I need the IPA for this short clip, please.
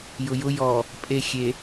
j ʊ j ʊ j ɔ | pʼ e xʲ e

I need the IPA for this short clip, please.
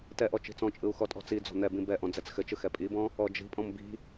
t ɛ ʔ ɔ t͡ʃ i̤ t͡s ɔ̃ t͡ʃʼ ɯ u̯ x ɔ tʼ ɔ̤ t͡s i d͡z ɔ̤ n̪ ɛ b ĩ b ɛ ʔ ɔ̃ d͡z ɛ t͡s x ɘ t͡ʃ ɯ x ɛ pʼ i b ɔ̃ | ɔ d͡ʒ i̤ pʼ ɔ̃ m b i̤

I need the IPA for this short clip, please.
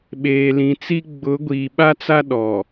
ɓ eː˨ l ĩ˨ t͡s i˦ ɡ͡b ʊ˨˦ ɡʷ iː˨ ɓ a˦ t͡s a˦ ɗ ɔ˨

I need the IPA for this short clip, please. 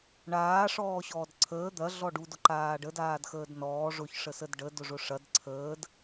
ɳ aː ʂ ɔː ɕ ɔː d ǀʰ əː d̪ ɐ ɮ ɔ ɖ u d ʊ ǃ aː ɖ ə d aː d x əː d n ɔː ʐ ʊ ç ʂ ə s ə d ɖ ə d ʊ ʐ ʊ ʂ ɐ d ǀʰ əː d

